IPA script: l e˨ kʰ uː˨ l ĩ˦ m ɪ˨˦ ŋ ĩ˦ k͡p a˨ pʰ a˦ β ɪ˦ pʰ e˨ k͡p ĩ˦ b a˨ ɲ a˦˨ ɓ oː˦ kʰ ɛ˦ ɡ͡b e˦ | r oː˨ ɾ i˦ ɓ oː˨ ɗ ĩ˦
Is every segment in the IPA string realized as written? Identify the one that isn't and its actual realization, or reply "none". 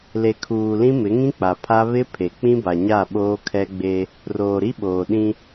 none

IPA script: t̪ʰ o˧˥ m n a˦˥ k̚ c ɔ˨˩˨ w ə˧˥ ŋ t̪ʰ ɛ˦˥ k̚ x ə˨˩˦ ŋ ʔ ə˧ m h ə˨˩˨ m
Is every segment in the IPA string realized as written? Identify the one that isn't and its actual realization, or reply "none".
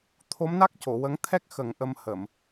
ɔ˨˩˨ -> o˨˩˨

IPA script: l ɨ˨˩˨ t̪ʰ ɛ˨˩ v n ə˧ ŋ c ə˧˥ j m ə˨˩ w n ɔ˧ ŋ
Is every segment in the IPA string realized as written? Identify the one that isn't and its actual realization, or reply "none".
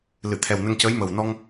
v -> w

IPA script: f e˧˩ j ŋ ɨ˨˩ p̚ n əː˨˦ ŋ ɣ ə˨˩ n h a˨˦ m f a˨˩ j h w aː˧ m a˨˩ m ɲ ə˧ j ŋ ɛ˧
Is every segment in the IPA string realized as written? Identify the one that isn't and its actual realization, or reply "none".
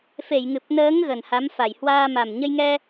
none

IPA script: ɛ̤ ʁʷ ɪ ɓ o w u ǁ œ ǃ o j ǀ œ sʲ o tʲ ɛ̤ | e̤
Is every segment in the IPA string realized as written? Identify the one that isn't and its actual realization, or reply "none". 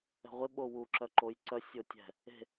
none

